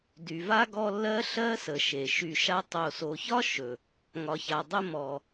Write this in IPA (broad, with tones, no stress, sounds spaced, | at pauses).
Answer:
d y˨ v a˥ ɡ ɔ˦ lː ɜ˦ ɬ ɜ˦ s ə˩ ʃ e˩ ʃ y˨ ʃ a˦ tˤ o˨ s o˨ ç ɒ˥ ʃ ɵ˩ | ŋ ɒ˨ ç a˨ dˤ ə˦ m ɔ˩